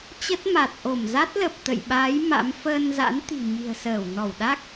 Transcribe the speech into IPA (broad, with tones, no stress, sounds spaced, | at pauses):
t͡ɕ ə˦˥ t̚ m a˨˩ t̚ ʔ o˧˩ m z a˦˥ t̚ l ə˨˩ p̚ t̪ ə̰˧˨ j ɓ aː˨˦ j m a̰˧˥ m f əː˧ n z a̰˧˥ n t̪ i̤˨˩ ɲ i̤˨˩ ə̯ s əː˧˩ w n ɔ˧˩ w ɗ a˦˥ k̚